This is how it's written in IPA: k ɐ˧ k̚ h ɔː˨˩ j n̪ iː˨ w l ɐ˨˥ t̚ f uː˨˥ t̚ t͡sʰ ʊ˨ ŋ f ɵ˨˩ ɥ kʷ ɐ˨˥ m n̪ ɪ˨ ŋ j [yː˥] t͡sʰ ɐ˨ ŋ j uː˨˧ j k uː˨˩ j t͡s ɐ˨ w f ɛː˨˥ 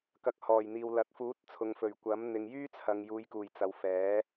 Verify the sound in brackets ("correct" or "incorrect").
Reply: correct